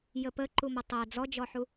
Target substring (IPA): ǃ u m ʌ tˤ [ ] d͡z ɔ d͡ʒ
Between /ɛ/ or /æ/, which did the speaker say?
æ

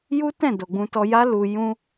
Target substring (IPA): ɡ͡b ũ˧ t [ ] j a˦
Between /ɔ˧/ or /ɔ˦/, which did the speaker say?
ɔ˧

